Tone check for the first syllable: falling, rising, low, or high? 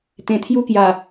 low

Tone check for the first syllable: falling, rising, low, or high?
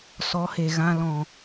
rising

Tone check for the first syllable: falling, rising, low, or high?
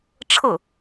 falling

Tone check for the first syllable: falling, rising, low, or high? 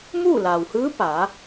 falling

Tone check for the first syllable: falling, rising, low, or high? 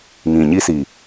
low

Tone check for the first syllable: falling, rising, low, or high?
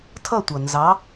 falling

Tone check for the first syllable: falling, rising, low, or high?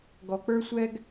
low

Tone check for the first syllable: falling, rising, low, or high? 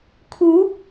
rising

